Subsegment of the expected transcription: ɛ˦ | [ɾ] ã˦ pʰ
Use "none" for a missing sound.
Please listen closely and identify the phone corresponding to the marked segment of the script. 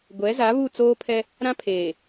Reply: ɾ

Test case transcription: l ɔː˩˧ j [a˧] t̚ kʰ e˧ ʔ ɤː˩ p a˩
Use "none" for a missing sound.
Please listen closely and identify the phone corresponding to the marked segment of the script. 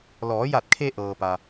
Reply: a˧˩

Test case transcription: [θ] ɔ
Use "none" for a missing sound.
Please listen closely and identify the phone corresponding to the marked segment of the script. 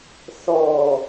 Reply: θ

